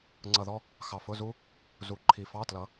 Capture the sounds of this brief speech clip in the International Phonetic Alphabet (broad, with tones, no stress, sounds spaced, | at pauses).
ŋ͡ǀ ʌ˧˩ ð ɔ˥ | x ɑ˧˩ f ʊ˧˥˧ z u˥ | z u˨˦ ǃʰ i˨˦ f ɑ˧˥˧ t l ʌ˨˦